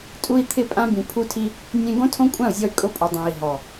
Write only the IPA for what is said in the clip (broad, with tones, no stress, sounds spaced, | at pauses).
tʼ u˧ i̯ t̪ʰ ɪ˧ pʼ ã˧ b ĩ˨ pʰ u˧ tʰ i˧ | nʲ ẽ˧ ɡ õ˦ tʰ õ˦ kʷʼ ã˦˨ u̯ zʲ ɔ˧ y̯ kʼ ʊ˧ pʼ o˨ dˤ ẽ˨ i̯ ɦ ɔ˨